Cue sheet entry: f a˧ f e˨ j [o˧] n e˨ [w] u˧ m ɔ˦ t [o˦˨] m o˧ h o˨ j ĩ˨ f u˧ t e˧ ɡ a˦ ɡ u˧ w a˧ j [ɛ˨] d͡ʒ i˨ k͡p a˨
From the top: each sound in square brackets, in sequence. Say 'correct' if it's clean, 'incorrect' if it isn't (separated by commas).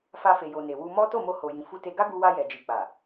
incorrect, correct, correct, correct